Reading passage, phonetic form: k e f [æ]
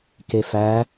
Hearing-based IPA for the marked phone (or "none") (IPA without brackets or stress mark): æ